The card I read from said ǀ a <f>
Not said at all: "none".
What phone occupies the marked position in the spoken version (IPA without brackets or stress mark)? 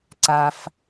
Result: f